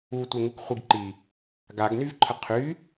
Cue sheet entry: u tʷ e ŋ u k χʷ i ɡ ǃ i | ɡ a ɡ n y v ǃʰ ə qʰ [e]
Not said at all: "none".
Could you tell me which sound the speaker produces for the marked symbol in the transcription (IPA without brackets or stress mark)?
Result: y